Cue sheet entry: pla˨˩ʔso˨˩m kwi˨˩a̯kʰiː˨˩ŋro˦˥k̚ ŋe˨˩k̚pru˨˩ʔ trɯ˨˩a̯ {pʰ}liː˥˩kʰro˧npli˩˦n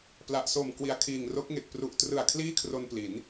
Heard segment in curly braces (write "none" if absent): kʰ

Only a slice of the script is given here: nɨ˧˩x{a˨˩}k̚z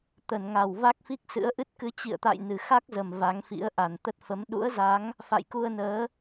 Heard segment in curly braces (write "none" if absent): a˦˥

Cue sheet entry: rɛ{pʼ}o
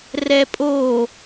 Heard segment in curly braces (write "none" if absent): pʼ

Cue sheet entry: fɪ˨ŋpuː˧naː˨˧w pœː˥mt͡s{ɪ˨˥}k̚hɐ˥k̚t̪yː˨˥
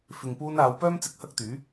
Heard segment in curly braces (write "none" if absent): ɪ˨˥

